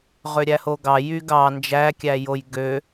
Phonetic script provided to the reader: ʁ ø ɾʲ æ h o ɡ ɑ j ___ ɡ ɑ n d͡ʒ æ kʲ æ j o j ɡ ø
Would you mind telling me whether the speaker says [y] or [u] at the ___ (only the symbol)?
y